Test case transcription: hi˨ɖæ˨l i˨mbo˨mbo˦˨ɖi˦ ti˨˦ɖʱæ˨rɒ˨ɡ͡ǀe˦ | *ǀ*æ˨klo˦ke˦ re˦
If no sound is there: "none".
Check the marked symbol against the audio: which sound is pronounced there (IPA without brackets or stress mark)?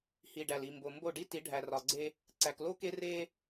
ǀ